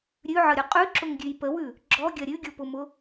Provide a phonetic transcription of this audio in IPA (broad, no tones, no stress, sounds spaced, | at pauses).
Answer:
ɾʲ ʉ ʕ ə ɾʲ ʊ qʼ ʉ ǁ ʊ ŋ ɡʲ ʉ j p ə w ʉ | ɡ͡ǁ ɔ ɡʲ ɐ ɾʲ ʉ ɡʲ o p ʊ m ʊ